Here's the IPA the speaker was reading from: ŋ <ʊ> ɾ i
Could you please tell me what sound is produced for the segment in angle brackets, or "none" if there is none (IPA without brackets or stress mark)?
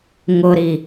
ʊ